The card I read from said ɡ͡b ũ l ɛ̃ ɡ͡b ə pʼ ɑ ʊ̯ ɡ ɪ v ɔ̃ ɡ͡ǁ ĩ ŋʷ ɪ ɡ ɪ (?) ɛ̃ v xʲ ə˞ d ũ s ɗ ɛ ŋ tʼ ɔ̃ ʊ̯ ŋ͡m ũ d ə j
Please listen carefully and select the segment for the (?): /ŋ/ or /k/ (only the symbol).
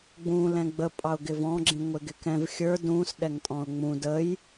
k